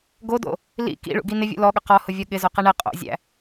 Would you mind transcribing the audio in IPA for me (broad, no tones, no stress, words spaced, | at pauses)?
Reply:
ɡodo̰ | lḭ kḭɭṵɡi nɪvʲṵ lɔɠʊ qɔhʊvʲɔ ɠɪzoqi ɳɪ qʼo̰zʲæ̰